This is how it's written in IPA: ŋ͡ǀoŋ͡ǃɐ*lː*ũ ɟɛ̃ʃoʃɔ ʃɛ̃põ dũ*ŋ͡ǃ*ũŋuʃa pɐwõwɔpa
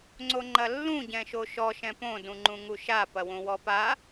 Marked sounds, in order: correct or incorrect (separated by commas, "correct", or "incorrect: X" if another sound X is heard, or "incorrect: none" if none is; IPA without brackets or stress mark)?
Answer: correct, correct